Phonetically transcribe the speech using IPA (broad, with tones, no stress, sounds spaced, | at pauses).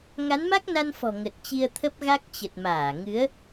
ŋ a˨˦ n m a˦˥ k̚ n a˧ n f ɔ̤˨˩ ŋ ə˨˩ t̚ t͡ɕ i˧ ə̯ t̪ʰ ə˦˥ p̚ ɣ a˦˥ k̚ t͡ɕ ə˨˩ t̚ m aː˧˩ ŋ ɨ˨˦ ə̯